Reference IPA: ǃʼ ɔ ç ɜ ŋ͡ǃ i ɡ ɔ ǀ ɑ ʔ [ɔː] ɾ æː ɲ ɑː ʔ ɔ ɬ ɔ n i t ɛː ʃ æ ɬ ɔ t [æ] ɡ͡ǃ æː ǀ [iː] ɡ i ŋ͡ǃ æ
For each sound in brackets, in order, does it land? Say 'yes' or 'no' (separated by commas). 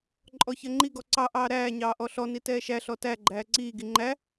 no, yes, yes